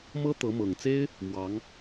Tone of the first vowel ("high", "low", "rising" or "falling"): high